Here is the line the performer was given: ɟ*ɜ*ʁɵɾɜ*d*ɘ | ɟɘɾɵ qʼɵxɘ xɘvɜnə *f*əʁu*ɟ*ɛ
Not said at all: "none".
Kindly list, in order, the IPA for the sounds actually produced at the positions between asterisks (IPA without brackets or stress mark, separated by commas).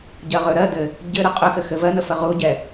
ɜ, d, f, ɟ